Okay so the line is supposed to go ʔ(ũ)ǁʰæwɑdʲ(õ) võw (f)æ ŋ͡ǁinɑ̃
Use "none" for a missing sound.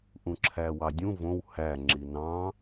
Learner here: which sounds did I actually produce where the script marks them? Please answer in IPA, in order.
ũ, ũ, h

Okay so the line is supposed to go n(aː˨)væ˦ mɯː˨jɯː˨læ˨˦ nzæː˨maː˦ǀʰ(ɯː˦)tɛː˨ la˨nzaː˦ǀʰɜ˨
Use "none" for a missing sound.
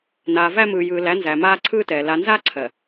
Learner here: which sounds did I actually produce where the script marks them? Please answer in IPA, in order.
aː˨, ɯː˦

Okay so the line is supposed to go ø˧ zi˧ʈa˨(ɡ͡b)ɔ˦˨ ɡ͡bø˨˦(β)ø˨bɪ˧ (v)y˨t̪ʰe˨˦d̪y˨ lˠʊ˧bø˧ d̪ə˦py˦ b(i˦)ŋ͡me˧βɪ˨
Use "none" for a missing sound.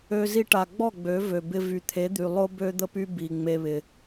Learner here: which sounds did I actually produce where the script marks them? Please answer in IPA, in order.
ɡ͡b, v, v, i˨

